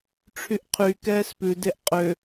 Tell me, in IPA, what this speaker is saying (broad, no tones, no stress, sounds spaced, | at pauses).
ʈ͡ʂʰ y ʔ qʰ y k ɛː s p ʉ d e ʔ qʼ ø